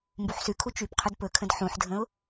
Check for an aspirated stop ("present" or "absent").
present